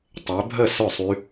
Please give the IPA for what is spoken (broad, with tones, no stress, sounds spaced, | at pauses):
tˤ ø˨˦ bʱ ə˥˨ s œ˥˨ sˤ y˦˥